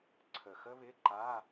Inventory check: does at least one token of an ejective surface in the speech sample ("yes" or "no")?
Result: no